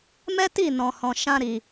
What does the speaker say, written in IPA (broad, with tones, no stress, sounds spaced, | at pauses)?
m ɛ˦ t i˦˨ n ɔ̃˨ h ɔ̃˨ ʃ ã˧ ɾ i˨